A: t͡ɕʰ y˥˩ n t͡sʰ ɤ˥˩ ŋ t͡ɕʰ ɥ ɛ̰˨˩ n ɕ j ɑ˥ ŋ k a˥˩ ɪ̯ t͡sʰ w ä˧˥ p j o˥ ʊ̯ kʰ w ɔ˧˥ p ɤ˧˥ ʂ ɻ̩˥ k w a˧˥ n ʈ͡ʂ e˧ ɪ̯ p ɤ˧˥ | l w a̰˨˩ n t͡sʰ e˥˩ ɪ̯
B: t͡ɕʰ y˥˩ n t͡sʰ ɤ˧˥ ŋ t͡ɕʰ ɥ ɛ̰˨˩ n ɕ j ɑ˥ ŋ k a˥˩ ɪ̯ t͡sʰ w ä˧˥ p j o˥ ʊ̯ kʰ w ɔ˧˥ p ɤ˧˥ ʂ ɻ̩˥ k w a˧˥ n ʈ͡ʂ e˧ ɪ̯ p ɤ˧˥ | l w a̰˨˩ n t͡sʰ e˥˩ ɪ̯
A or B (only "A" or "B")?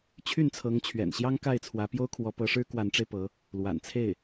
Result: B